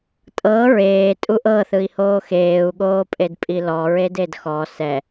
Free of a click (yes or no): yes